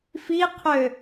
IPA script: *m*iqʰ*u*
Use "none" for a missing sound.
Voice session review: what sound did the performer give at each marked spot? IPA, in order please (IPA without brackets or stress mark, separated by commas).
f, ø